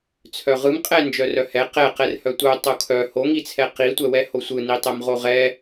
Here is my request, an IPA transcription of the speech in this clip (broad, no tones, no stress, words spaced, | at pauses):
t͡sʰœʁɯm qʼɛ nd͡ʒœrœhɛ qɛqɛr hœtʷœ tˤokʰœ hoŋit͡sʰɛ qitʷɛwɛho sʷɯnitˤɛm ʁoʁɛ